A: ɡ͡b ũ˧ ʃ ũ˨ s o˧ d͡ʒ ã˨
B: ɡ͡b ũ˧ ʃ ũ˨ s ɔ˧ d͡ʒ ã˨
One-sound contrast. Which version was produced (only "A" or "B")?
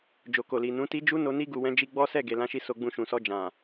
B